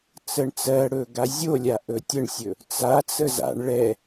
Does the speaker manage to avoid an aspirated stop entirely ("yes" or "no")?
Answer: yes